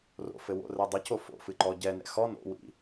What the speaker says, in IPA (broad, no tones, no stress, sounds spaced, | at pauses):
r o̰ f ɘ w o̰ r ɛ dˤ ɨ c o f o̰ f ɨ ǃ ɔ ɟ ɛ n ɛ̰ x ɔ n o̰ w ḭ